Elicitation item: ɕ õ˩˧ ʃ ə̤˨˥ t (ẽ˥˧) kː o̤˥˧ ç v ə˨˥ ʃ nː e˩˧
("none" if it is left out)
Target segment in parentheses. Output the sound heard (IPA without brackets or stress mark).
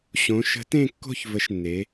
ẽ˥˧